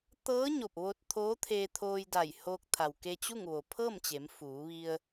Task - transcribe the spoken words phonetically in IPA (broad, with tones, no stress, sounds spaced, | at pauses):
t̪ ɤː˧˥ ɲ o˧˩ p̚ ʋ o˧ t̚ t̪ʰ oː˧˥ t̪ʰ eː˧ t̪ʰ oː˧ j d a˧˩ j h oː˧ k̚ t̪ʰ a˩ w k e˧ t͡ɕ u˥˨ ŋ ʋ o˩ pʰ ɤː˥˨ m t͡ɕ e˩˧ m f uː˩˧ ʋ i˧ ə̯